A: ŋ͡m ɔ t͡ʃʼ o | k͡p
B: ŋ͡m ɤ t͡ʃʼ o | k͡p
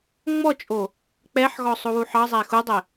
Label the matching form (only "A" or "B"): A